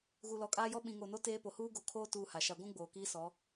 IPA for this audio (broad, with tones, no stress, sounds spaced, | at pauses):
ɣ u˨ l ɔ˨ kʼ aː˦ j ɔ˦ ɓ ĩ˨ ŋ o˨ n o˦ t eː˦ p o˨ h uː˦ ɡ o˨ kʰ oː˦ t uː˦ h a˨ ʃ a˦ ɡʷ ũ˦ ɡ͡b oː˨ k iː˦ s ɔ˨˦